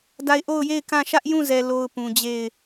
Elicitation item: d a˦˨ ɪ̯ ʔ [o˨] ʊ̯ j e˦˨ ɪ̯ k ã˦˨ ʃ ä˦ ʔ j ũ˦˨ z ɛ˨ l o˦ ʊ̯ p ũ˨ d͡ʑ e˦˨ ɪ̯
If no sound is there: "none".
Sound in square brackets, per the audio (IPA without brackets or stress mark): o˦˨